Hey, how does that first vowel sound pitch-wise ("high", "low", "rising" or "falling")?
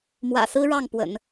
low